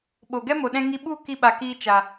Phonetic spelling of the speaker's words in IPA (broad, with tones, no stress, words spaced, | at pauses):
ɓo˨ɡɛ˦ mo˨ɗɛ̃˧ ŋi˧ɓu˦˨ ki˧ɓa˨kiː˧ t͡ʃa˨